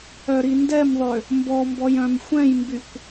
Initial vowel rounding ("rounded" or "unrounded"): rounded